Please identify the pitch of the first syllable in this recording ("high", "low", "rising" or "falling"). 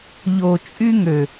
low